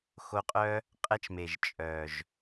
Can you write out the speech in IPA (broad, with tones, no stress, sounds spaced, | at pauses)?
x o˧ qʼ œ˦ | qʼ ɛ˦ t͡ʃ m e˨ ʒ t͡ʃʼ œ˨ ʒ